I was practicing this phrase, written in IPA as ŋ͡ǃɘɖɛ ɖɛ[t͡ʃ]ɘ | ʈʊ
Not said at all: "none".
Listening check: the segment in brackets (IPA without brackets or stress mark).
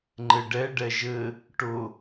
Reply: ʒ